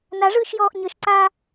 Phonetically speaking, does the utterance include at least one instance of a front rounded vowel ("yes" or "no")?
no